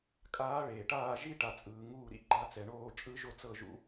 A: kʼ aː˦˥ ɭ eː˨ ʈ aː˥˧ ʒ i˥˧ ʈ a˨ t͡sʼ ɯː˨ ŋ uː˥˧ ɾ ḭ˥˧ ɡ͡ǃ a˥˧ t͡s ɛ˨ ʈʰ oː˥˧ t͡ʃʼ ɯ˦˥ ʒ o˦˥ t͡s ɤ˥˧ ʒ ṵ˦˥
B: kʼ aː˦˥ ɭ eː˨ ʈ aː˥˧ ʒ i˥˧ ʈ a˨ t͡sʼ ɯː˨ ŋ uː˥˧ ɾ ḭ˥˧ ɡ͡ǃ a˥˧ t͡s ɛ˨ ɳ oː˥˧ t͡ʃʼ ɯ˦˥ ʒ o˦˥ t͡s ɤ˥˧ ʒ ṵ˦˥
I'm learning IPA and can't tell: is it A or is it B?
B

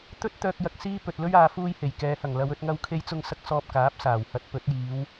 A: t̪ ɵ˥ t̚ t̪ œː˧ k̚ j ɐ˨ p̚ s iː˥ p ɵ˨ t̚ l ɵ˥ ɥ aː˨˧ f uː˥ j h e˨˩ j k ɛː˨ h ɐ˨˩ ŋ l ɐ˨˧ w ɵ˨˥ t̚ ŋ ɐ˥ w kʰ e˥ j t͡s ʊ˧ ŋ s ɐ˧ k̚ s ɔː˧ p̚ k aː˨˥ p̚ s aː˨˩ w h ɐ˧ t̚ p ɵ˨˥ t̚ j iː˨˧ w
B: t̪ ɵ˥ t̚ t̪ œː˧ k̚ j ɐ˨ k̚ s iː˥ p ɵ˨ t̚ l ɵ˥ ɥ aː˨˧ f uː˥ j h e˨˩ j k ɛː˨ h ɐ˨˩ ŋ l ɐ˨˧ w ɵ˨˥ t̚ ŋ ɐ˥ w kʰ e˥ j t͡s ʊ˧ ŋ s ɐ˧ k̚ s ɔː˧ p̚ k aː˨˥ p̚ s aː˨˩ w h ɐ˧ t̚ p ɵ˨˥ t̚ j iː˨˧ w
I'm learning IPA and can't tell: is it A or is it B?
B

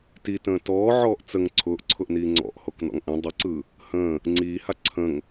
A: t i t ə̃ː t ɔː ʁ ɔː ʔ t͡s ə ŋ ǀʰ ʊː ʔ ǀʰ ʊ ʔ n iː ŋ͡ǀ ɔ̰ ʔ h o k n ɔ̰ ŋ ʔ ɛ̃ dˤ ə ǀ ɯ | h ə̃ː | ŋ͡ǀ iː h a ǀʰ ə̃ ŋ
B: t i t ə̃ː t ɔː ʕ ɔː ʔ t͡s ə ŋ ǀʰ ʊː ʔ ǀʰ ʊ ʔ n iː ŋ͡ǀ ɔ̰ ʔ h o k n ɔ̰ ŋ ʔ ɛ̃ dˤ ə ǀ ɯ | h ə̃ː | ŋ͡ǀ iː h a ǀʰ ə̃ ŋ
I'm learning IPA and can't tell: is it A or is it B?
B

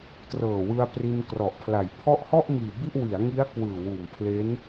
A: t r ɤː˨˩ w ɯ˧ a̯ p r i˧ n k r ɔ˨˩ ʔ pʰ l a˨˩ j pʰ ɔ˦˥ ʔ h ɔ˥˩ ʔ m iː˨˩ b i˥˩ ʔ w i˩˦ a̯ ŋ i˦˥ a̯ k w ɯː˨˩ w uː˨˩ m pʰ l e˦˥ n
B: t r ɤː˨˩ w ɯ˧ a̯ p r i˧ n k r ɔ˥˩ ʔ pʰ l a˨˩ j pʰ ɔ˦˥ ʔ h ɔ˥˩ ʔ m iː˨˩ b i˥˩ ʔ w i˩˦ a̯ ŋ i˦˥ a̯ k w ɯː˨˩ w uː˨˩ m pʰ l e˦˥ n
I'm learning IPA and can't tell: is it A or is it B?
A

